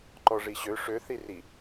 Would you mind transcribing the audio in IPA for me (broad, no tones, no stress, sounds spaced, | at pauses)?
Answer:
ǃ ɔ ʐ i ɕ ø ʂ ø θ i r i